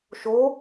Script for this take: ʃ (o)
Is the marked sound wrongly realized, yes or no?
no